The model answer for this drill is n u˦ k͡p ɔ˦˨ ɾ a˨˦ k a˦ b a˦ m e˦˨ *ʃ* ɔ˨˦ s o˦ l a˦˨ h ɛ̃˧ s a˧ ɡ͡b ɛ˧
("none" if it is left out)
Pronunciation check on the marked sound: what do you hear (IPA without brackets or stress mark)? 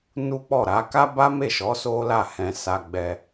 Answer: ʃ